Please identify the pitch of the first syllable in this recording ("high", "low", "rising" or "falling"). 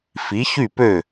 rising